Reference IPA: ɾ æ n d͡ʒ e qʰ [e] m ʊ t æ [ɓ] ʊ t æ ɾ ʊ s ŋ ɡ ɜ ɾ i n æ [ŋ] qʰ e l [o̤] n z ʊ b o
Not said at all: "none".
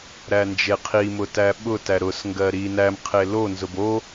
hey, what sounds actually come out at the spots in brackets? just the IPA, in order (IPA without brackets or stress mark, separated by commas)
i, ɓ, m, o